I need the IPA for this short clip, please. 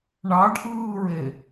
ɳɑɖʔɯːɹe

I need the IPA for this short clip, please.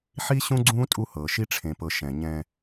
ħi˦ ɕũ˦ɡ͡ǀũː˦ tʼu˦hɤː˨ ʃi˦ʈ͡ʂʰẽ˨pɤ˨ ʃɛ̃˨ɲɛ̃˦

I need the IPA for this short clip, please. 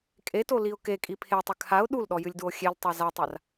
kʼetoliʊ̯ kekʼi pʰetˤɨ kʰaʊ̯ ɗulɗɔjɨlʲdwo xʲeltˤa zatˤar

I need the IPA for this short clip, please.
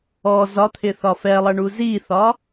ɔ zɒt̪ʰɪθɒ fɛlˠʌɳu ziθɒ

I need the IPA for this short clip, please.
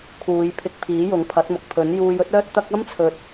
kʰuː˨˧j pʰɪ˧k̚pʰiː˨˥ jʊ˨˥ŋ pʰɐ˨˥t̚mʊ˨k̚ pʰɵ˨˥njuː˧j ɵ˥t̚œː˥t̚t̪ɐ˥k̚ ɐ˥mt͡sʰɵ˨t̚

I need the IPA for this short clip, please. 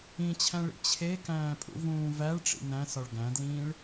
ĩt͡ɕʰæ̃ɭḭ t͡ɕʰekæ̃ːpʼṵvũː væɭʈ͡ʂḭ næ̃sɒɭ ɡæ̃dlĩːɭ

